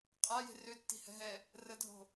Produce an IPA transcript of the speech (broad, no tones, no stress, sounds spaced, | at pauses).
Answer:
qʼ a j e̤ r ø tː i̤ h ɛ̤ ɦ ɛ | r ə dʱ o̤